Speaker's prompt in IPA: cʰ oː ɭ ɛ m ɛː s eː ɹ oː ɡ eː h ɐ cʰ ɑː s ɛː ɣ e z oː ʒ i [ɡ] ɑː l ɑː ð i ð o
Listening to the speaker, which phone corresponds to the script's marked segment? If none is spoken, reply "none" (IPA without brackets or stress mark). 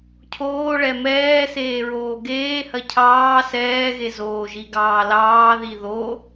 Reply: ɡ